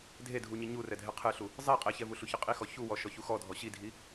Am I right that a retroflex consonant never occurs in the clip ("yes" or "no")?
yes